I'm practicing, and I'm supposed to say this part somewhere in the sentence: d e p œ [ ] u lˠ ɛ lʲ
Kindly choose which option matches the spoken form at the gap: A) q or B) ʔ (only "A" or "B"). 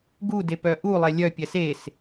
B